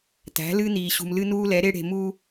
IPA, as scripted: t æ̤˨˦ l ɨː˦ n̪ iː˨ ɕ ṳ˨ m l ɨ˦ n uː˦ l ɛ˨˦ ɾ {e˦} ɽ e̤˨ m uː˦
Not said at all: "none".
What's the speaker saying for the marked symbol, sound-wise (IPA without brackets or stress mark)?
e˦